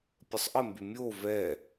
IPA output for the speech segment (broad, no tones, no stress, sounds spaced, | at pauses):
pʲ ə sˤ ʔ ə m b y mʲ o v ɛ